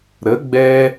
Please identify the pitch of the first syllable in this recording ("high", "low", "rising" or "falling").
rising